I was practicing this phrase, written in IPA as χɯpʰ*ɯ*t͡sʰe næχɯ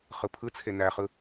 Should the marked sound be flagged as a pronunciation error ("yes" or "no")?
no